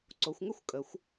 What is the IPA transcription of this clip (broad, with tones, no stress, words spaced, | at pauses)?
ǀo˩˧xʷŋʏ˥˩xʷ kʼə˩˧xʷ